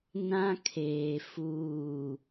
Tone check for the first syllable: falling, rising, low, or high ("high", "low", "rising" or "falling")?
high